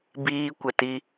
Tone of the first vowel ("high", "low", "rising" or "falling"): high